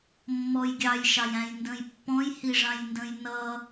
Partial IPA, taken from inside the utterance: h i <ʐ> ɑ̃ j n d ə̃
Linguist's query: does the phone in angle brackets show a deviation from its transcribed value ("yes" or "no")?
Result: no